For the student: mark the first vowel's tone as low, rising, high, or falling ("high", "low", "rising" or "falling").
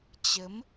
rising